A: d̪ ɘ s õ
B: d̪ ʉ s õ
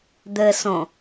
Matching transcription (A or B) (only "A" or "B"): A